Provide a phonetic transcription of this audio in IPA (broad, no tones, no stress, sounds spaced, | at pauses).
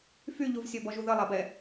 f y ʎ u v sʲ ɔ b ɔ ʒ u ð ə lˠ a b ɛ